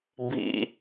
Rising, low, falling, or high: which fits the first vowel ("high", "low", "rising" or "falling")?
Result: low